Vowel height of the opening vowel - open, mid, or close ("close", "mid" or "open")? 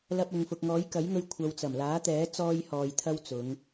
open